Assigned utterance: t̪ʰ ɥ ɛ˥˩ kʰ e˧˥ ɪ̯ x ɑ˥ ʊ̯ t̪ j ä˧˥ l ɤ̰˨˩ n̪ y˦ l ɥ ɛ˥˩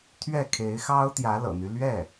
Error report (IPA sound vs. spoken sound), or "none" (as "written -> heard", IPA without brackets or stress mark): none